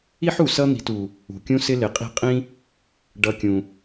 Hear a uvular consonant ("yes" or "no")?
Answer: yes